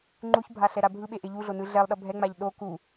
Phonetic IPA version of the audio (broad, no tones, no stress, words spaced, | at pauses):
ŋ͡ǃuçbʱa ɬɛɾabʱɯɓe ʔeʎuɮo nɯɮɛlˠɗʌ bʱɛŋ͡maʎ ɗo ku